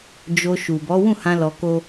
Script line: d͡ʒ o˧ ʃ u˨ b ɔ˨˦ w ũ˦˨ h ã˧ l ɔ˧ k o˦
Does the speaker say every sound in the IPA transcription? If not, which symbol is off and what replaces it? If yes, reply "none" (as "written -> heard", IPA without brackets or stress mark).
none